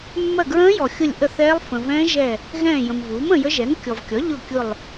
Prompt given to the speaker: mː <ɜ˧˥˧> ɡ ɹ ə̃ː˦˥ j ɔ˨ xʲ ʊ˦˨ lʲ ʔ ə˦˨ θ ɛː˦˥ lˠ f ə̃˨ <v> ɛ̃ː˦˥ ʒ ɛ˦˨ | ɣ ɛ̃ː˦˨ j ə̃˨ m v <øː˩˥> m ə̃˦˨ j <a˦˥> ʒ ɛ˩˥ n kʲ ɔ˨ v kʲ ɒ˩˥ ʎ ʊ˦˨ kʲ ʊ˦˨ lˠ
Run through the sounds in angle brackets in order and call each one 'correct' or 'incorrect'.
incorrect, correct, incorrect, incorrect

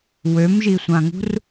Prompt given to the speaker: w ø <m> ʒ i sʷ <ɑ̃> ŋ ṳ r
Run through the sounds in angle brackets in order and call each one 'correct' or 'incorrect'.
correct, incorrect

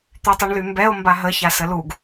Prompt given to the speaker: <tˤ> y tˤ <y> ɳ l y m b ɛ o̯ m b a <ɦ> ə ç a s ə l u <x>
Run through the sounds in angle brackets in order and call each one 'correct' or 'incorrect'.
incorrect, incorrect, correct, incorrect

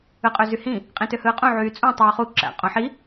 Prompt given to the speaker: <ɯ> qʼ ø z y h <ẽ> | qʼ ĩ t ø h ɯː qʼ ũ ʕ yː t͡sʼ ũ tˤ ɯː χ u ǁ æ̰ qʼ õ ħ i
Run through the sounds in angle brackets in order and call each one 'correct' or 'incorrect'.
correct, incorrect

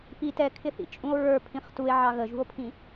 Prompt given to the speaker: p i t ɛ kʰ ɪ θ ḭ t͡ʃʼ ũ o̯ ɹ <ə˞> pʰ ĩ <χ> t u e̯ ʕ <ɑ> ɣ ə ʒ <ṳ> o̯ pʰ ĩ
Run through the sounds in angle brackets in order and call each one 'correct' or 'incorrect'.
correct, correct, correct, correct

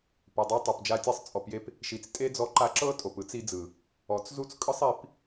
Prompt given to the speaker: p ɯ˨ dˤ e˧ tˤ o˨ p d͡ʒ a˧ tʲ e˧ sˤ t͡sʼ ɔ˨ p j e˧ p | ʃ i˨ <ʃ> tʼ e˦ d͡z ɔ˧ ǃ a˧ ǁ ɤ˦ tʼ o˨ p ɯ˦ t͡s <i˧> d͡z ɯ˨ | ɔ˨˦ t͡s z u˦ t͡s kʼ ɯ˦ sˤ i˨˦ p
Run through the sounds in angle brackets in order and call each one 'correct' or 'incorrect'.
incorrect, correct

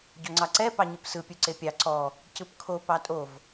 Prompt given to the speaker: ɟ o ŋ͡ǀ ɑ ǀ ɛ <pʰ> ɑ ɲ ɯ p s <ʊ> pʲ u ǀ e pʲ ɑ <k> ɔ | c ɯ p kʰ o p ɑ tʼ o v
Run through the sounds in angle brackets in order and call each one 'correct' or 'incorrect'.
incorrect, incorrect, incorrect

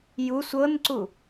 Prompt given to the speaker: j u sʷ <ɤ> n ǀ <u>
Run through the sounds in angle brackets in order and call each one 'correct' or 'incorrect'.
correct, correct

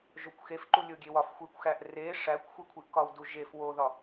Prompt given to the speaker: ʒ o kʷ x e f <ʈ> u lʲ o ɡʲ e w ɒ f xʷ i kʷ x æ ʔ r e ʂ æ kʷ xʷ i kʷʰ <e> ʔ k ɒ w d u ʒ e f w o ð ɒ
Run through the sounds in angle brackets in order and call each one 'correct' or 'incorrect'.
incorrect, incorrect

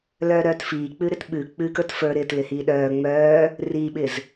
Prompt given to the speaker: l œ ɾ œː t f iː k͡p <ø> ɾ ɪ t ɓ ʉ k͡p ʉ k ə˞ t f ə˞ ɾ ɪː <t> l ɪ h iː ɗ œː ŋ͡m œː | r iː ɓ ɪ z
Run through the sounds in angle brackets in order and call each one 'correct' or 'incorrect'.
incorrect, correct

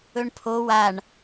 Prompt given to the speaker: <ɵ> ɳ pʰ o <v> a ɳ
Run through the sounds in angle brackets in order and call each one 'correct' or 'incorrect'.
correct, incorrect

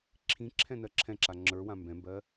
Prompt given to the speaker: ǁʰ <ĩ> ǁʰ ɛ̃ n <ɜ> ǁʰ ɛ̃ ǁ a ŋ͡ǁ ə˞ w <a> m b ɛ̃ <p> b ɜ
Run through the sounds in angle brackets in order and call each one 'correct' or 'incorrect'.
correct, correct, incorrect, incorrect

